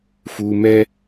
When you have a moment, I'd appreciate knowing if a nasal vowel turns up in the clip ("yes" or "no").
no